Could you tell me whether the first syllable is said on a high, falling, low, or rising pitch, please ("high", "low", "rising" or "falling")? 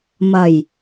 low